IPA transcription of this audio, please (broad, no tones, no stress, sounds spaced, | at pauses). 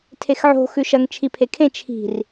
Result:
tʰ e x ʕ o̤ x ʉ ʃ ɐ ŋ t͡ʃʰ i pʰ e kʰ ẽ t͡ʃʰ i̤ r